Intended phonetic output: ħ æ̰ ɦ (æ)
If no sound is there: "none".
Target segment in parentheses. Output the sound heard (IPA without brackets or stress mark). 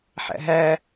æ